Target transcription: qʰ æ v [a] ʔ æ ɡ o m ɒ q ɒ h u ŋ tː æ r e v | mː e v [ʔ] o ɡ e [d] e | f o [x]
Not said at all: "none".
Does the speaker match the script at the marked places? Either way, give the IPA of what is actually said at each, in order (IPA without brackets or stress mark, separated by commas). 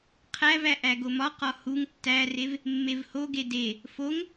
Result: æ, h, d, ŋ